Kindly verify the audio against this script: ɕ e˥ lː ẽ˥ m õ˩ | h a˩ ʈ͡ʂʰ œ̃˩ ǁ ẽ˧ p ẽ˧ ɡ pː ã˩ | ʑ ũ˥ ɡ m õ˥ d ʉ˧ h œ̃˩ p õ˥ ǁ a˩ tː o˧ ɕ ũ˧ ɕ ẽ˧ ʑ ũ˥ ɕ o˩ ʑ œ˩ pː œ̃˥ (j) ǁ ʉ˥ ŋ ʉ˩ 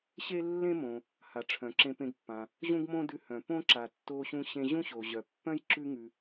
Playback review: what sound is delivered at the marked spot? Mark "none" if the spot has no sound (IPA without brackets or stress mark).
j